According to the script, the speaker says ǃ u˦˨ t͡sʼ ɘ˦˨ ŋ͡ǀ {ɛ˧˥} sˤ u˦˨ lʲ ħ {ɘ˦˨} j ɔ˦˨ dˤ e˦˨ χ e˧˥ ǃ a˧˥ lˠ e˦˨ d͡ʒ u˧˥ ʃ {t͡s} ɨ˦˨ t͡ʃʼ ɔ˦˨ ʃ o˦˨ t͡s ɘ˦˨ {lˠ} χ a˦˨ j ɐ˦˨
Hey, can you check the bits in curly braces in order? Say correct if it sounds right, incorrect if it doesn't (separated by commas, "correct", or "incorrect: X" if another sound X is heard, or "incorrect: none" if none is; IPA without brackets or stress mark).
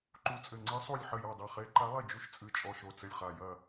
incorrect: ɨ˧˥, correct, incorrect: t͡sʼ, incorrect: lʲ